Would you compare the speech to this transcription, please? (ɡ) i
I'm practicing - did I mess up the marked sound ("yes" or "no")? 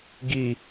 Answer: no